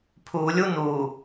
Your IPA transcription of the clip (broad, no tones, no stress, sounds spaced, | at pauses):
pʰ u lʲ u n u